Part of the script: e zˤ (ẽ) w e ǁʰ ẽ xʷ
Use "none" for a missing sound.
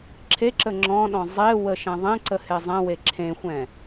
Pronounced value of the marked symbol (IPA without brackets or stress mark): ɛ̃